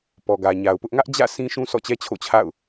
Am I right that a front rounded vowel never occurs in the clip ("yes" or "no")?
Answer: yes